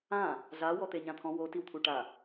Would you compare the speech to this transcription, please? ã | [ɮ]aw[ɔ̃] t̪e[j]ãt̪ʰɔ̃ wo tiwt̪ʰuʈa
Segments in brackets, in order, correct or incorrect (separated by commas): correct, incorrect, incorrect